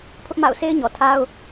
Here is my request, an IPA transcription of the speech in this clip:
pʰ ʊ˦ ʔ m a̰˦˨ ʊ̯ s e˦ ɪ̯ ɲ ɔ˨ tʰ a˦ ʊ̯

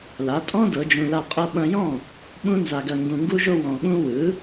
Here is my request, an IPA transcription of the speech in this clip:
l a˩˥ tʼ ɔ̃˥ d ɤ˩˥ d͡ʒ ũ˧ l a˥˩ qʼ ɤ˥ ɓ ɐ̃˧ j ɔ̃˥˩ | ɓ ũ˥ n z a˧ ɡ ɐ˧ ŋ ɡ ũ˧ ŋ ɡ u˥ ʒ o˥ w ɔ̃˧ ɠ ũ˥ w ɯ˩˥

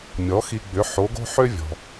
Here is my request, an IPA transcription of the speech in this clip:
mʲ ɔ˩˥ x i˧ ɡ͡b ʏ˩˥ ħ o˩˥ ɡ o̤˥ ħ ø˥ vʲ ɔ̤˩

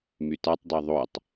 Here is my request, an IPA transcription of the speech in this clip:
m y t a tˤ dˤ a ðˤ o tˤ

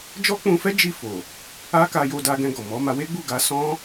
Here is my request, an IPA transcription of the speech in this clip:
d͡ʒ ɔ˦ k͡p ũ˧ f ɛ˦ d͡ʒ i˦˨ f o˨ | a˦ k a˧ j o˧ d a˧ ɡ ɛ̃˧ ɡ ɔ˨ m ɔ˨˦ m a˧ w e˦ ɡ͡b u˦˨ ɡ a˧ s ɔ̃˦

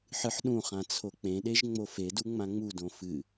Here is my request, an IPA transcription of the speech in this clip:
ħ ɨ ħ ɗ ũ χ ã t͡sʰ o k͡p ẽ ɗ e ʒ ŋ͡m o f e d u ŋ͡m ã ŋ͡m u d õ f ɨ

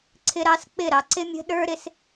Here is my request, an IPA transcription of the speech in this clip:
ǀʰ ɪ˧ ɾ ɑ˧ s k͡p ɪ˦˨ ɾ ɑ˧ ǀ ɪ˦ mʲ ə̤˦ ɗ ə˞˦ ɾ ɪ˦ s

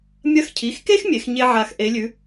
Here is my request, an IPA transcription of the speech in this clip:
mʲ ɐ˧˥ x cʰ i˩˧˩ x k e˥ x mʲ e˩˧ x ɲ e˥ ʕ a˦˨ x ʔ e˧˥ lʲ ʉ˧˥

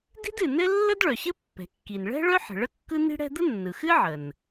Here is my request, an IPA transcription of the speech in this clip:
d i̤˥ d ɨ˩ n ɘ˥ lː ə˥ d ɭ œ˩ ɕ ɘ˥ pː ɛ̤˩ kː i˩ n ɭ ɛ̤˥ ɭ œ˥ ħ ə̤˩ ɭ ə˥ kː ɯ˥ n i̤˥ ɽ ɛ̤˥ d̪ ə˥ nː ɯ˩ x ɨ˥ ʕ ə˩ n

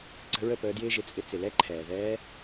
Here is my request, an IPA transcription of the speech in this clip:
ǀ ə̤˧ ɹ ə˦˨ p əː˧ d j ɪː˧ ʒ ɪ˨ t͡sʼ ɪ˧ t͡s ɪ˨ l ɛ˦ ǃʰ ɛː˨ ð ɛː˧

